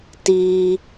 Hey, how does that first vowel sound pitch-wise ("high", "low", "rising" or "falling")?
high